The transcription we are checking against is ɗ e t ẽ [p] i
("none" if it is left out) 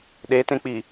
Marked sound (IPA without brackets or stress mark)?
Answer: k͡p